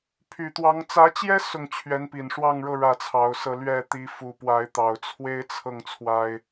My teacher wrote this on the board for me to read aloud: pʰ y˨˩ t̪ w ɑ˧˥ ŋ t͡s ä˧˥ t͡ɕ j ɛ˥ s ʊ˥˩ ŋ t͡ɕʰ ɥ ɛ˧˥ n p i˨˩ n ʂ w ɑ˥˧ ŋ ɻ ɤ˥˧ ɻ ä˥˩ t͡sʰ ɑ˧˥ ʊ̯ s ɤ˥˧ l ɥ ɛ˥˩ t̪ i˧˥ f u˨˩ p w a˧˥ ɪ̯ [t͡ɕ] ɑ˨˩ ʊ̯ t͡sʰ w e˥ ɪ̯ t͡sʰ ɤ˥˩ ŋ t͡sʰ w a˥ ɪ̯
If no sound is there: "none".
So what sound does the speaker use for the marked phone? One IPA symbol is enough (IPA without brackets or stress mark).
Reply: t̪